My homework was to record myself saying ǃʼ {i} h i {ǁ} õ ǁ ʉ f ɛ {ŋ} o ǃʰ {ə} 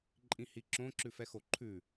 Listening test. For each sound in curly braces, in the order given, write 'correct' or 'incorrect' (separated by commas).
incorrect, correct, incorrect, incorrect